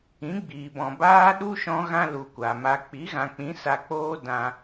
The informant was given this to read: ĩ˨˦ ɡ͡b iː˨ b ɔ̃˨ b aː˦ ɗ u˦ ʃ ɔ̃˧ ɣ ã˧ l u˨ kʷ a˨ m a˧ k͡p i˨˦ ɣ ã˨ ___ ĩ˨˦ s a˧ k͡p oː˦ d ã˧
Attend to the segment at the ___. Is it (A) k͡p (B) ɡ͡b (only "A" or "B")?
A